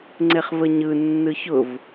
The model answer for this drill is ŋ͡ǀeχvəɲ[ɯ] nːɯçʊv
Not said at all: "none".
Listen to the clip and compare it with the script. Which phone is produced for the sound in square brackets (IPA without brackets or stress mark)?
ɯ